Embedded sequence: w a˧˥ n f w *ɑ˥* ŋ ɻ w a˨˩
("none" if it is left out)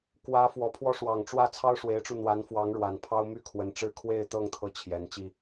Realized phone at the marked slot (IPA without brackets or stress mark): ɑ˧˥